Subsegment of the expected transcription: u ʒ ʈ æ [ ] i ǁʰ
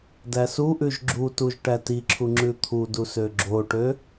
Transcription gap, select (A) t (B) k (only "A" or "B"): A